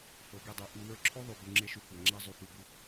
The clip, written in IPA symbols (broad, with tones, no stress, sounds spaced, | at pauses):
f ɤ˨˦ ɡ e˧ dˤ e˧ ʔ u˧ w ə˞˦ ǁʰ o˦ ðˤ y˨ b u˨ ŋ͡ǁ e˧ ʃ y˧ kʷ a˨ ŋ͡ǁ æ˦ zˤ y˨ f u˨ b u˧